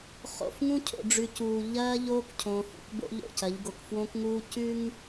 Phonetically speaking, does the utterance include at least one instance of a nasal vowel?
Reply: yes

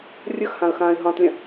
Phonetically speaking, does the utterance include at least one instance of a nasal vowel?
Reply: yes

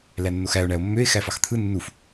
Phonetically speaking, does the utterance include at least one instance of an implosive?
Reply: no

